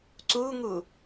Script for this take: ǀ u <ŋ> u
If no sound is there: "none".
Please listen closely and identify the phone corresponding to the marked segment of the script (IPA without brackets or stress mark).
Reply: ŋ